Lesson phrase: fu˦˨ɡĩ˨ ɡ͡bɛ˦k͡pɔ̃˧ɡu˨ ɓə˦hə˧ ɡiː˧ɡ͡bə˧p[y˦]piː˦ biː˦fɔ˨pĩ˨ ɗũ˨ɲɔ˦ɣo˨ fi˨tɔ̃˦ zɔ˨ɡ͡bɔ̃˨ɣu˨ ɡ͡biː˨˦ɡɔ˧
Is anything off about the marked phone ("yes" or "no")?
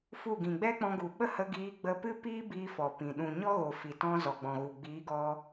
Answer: yes